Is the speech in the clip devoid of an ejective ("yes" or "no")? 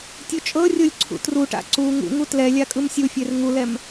no